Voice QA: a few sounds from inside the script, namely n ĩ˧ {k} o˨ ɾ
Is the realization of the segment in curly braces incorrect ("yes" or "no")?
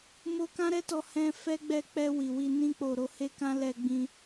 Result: yes